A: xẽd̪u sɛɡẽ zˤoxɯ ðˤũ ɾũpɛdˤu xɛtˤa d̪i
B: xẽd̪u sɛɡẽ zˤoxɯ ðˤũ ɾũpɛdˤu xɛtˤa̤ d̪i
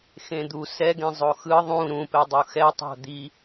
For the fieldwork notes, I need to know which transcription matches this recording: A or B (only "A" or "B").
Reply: B